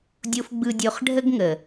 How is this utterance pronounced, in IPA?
dʲ o˧ f ɡ͡b ɯ˧ dʲ o˧ χ ɖʱ ə˦ ɡ ŋ ə˨

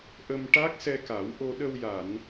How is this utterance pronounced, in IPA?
ʔ ə˧ m ʈ a˦˥ k̚ s ɛ˧ k a˨˩˦ w ʔ o˧ ɗ ə˧ w j a˨˩˨ n

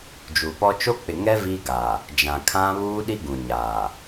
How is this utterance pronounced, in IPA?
d͡ʒ u˨ p ɔ˦ t͡ʃ o˦ k͡p ɪ˨ ŋ ɛ˦ v iː˦ ɡ a˨ | d͡ʒ ã˨ kʰ ã˦ β uː˦ ɗ i˦ ɡ ũ˨ ɲ aː˨

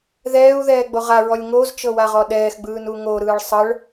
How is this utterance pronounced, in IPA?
ð ɛː u̯ ð ɛː ɡ͡b o ʁ a ɹ ɔ lʲ ŋ o z t͡ʃ ɤ w a ʁ ɔ ɗ ɛː x ɡ͡b ɯː n u ŋ o ɾ ɯː ɭ sˤ ɤ ɭ

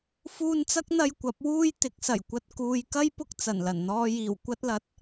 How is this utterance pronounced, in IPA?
f uː˧ n t͡s ɐ˥ k̚ n̪ ɐ˧ j kʷ ɐ˨˥ p̚ w uː˧ j t̪ ɪ˨˥ k̚ s ɐ˨˩ j kʷ ɐ˧ t̚ k uː˨ j k ɐ˥ j p ʊ˧ k̚ t͡s ɐ˨˩ n l ɐ˨˩ n n̪ ɔː˧ j iː˨˩ w kʷ ɐ˧ t̚ l ɐ˨˥ t̚

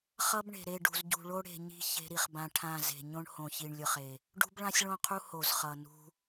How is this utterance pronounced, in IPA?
χ ʌ˦ b ɳ e̤˨ ɾ e˦˨ ɖ ṳ˨ z ɟ ṳ˨ ɭ o˦ ɽ e̤˨ ɲ i̤˦ ç e̤˦ ɾ i˨ χ b ã˦ ʈʰ ã˦˨ z e̤˨ ɲ õ˦ ɳ h õ˨ ç i˨ ɳ lʲ ɯ˨ χ e˨ | ɖ ṳ˦ b ɭ ã˦ sʲ ɭ õ˦˨ qʰ u˦ h o˨ z χ ʌ˨ n ṳ˦

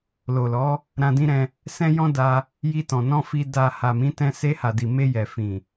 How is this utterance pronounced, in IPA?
l o˨ l ɔ˨˦ | ɾ ã˧ d ĩ˦ ɾ ɛ̃˧ | s ɛ̃˦ j ɔ̃˦ d a˧ | j i˧ t ɔ̃˨ n ɔ̃˧ f i˧ d a˧ h a˨ m ĩ˨˦ t ɛ̃˧ s e˧ h a˨ d i˨ m e˧ j ɛ˨ f ĩ˨

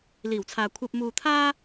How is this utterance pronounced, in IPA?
l iː˨˩ w t͡sʰ aː˨ kʷʰ ɐ˧ p̚ m uː˧ t̪ʰ aː˥

